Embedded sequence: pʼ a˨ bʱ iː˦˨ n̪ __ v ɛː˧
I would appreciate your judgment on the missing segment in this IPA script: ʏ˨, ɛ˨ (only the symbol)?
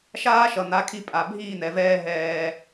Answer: ɛ˨